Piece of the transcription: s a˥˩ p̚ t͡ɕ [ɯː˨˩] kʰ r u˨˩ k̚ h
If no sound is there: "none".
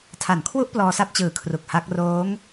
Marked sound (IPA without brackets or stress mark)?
ɯː˨˩